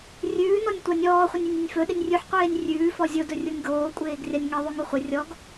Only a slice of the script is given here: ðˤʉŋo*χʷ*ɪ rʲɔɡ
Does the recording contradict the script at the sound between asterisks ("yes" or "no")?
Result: no